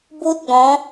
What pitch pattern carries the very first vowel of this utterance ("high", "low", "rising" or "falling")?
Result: high